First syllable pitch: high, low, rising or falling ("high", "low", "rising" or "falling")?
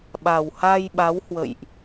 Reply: low